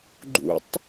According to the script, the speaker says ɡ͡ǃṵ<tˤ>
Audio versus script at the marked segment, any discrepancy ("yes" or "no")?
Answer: no